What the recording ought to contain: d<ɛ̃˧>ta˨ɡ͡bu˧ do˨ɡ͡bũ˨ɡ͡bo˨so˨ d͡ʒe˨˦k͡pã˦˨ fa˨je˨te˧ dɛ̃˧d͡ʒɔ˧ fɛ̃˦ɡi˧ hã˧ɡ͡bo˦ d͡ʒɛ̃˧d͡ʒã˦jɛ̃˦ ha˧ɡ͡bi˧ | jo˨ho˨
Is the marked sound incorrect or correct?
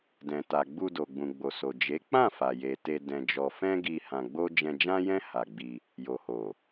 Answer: incorrect